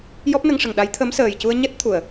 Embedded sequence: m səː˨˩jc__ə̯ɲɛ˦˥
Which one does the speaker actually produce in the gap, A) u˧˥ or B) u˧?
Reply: B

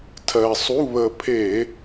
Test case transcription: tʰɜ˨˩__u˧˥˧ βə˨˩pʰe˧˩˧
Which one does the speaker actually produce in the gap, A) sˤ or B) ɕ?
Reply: A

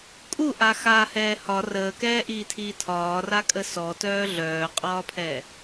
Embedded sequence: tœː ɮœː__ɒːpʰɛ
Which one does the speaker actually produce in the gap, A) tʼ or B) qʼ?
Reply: B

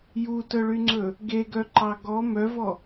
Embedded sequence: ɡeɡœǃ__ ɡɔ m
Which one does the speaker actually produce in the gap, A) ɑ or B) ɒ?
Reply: A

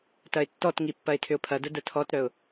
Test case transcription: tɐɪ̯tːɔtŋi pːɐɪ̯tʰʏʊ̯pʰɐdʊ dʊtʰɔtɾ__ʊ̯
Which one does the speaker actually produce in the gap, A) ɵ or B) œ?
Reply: B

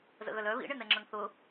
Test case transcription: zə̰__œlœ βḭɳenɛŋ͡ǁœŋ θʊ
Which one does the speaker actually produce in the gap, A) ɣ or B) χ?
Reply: A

